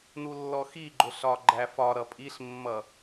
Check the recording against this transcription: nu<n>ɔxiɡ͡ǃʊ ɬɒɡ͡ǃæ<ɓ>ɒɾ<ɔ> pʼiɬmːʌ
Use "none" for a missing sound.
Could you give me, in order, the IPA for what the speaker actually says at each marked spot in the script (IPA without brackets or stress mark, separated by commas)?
lː, f, ʌ